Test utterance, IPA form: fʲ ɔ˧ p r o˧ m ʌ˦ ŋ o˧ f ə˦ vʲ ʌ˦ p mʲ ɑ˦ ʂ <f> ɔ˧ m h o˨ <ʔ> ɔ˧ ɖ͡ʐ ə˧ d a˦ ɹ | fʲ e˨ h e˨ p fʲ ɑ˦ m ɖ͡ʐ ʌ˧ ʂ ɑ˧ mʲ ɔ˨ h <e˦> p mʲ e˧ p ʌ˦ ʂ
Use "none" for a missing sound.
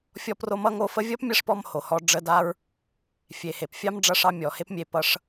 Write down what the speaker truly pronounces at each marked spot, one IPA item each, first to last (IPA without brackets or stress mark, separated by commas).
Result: p, h, e˦